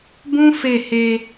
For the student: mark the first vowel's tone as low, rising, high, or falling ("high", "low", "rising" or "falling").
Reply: high